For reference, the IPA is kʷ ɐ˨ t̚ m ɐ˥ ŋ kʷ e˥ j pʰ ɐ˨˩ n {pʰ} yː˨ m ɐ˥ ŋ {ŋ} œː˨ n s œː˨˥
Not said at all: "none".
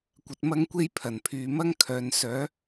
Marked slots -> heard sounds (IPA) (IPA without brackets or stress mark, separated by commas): pʰ, kʰ